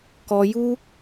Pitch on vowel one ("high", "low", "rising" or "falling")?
high